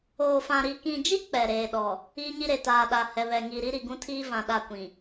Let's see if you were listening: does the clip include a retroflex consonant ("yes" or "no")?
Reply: no